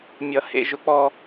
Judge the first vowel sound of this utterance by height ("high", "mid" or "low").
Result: mid